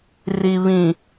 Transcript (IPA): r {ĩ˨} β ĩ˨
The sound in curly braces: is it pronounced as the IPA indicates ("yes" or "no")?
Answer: no